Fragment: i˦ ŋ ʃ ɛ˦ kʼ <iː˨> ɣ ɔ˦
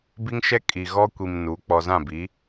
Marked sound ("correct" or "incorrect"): incorrect